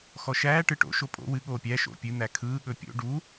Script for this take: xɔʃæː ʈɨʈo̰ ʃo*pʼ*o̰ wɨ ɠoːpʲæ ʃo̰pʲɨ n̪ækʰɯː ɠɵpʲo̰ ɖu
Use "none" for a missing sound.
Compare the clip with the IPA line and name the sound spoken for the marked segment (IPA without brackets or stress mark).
pʼ